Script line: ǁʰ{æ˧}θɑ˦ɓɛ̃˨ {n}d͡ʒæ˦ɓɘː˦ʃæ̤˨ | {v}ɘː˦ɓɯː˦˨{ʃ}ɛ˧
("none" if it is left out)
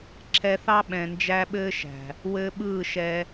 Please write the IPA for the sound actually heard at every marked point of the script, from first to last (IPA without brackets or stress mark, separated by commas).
ɛ˧, n, w, ʃ